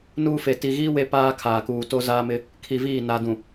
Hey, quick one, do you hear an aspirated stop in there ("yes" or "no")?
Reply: yes